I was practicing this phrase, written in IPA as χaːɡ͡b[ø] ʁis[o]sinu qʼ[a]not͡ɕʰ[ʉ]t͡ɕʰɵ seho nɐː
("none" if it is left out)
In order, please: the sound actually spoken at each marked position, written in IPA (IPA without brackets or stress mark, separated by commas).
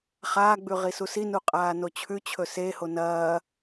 ʉ, u, aː, ʉ